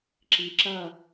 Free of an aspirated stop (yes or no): yes